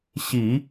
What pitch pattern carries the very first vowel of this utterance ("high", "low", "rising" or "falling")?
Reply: low